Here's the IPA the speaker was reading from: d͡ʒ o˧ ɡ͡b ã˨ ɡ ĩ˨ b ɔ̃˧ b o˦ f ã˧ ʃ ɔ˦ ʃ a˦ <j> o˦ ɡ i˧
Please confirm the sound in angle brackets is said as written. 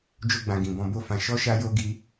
yes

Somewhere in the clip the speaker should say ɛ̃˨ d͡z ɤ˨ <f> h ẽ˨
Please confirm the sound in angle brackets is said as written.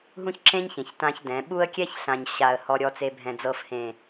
yes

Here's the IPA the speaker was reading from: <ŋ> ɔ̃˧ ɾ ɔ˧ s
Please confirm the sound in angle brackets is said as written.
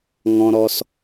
yes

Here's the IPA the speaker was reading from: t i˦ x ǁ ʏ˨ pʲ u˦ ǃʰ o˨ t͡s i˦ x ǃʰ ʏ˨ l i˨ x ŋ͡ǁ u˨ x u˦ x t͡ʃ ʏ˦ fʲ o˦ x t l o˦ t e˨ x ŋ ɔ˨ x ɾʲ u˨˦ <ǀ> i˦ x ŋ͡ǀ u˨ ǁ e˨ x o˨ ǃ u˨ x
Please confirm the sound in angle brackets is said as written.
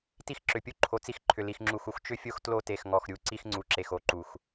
yes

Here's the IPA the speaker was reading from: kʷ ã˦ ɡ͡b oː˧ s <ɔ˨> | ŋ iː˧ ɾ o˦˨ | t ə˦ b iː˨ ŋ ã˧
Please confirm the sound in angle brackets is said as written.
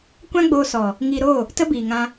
yes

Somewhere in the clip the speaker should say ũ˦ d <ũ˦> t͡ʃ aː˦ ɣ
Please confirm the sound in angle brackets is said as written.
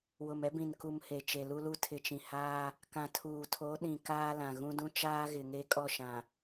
yes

